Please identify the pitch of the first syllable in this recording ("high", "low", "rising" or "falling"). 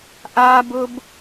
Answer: high